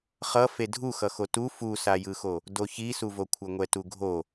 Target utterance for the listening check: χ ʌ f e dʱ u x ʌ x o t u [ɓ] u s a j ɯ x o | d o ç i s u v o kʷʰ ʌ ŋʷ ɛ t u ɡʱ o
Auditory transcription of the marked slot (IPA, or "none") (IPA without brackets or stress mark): f